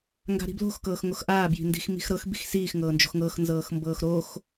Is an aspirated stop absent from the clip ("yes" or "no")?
yes